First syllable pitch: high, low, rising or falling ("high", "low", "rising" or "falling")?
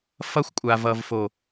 high